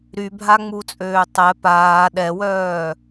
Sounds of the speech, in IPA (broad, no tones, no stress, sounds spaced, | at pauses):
ɾ y bʱ a ŋ͡m u t͡sʼ øː tˤ ɛ p aː ɗ ɛ w œː